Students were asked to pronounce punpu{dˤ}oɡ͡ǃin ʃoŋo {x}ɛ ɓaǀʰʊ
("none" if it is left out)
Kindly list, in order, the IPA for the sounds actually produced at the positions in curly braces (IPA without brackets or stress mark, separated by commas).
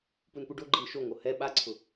ɖ, h